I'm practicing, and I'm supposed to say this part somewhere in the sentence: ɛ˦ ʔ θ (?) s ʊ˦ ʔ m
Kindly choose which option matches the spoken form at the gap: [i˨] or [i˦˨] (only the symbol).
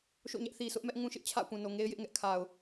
i˨